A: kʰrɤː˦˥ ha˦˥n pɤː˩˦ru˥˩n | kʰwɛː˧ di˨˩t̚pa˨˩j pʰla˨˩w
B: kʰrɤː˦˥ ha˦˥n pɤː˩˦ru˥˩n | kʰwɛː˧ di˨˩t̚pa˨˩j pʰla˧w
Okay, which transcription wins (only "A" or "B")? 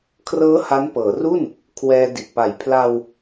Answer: B